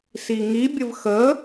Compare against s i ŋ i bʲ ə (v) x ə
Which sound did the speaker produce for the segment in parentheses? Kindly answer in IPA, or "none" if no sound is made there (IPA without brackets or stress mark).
v